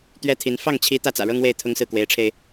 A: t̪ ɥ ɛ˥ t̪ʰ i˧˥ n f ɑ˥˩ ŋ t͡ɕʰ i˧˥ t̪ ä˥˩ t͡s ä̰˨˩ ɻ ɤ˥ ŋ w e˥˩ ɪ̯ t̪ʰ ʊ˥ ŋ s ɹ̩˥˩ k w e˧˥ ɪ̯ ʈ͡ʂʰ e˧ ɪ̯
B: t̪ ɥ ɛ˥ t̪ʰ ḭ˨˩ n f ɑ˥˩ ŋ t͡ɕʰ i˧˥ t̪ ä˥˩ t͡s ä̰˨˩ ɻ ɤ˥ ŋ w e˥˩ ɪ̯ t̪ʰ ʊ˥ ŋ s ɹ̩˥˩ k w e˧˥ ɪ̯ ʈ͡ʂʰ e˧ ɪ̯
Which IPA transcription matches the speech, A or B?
A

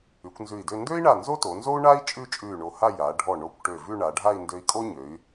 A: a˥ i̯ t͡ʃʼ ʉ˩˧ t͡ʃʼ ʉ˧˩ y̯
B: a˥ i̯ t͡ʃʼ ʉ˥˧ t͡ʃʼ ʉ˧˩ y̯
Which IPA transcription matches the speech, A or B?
B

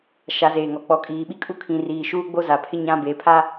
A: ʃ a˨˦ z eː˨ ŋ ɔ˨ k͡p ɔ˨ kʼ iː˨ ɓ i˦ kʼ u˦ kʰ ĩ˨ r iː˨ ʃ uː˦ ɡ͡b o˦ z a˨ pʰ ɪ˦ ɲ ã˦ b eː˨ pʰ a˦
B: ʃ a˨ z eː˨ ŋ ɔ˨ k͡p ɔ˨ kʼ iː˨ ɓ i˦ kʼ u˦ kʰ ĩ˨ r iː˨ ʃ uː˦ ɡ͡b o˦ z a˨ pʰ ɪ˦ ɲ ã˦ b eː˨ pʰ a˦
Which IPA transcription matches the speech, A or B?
A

